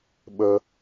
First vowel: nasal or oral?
oral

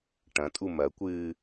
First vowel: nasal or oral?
nasal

